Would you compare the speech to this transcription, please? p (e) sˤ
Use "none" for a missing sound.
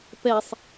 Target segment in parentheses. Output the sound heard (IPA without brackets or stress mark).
ɛ